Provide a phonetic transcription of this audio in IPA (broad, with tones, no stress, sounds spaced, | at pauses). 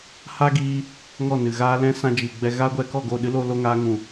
h a˦ ɡ iː˧ | ŋ ɔ˦˨ n ɨ˨ ɣ aː˦ l ɛ̃˦ s ã˧ d͡ʒ i˨ ɡ͡b ɛ˧ ɣ a˦ ɡʷ ɛ˧ k ɔ˦˨ ɡ o˦˨ ɗ ɨ˦ l o˧ l o˦ ŋ aː˦ ŋ ũ˨